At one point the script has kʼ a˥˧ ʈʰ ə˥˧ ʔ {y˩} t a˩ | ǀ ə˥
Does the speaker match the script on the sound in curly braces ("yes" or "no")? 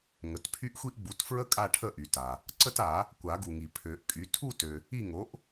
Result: yes